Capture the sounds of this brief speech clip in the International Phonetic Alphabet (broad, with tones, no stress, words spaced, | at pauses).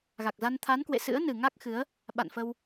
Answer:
ɣa˨˩k̚za˧n t̪ʰa˨˦nkwḛ˧˨sɨ̰˧˥ə̯ nɨ˨˩ŋa˦˥k̚xɨ˨˦ə̯ | ɓa̰˧˨nfə˧w